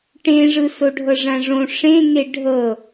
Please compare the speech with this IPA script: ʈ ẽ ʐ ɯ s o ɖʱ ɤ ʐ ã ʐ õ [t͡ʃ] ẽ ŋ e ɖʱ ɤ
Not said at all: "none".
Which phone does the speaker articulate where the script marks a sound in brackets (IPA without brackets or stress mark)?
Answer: ʂ